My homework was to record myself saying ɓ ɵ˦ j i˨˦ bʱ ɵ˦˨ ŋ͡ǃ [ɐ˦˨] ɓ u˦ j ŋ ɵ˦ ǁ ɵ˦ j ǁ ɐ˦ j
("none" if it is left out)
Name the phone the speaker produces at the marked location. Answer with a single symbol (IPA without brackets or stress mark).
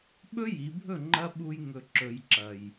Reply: ɐ˦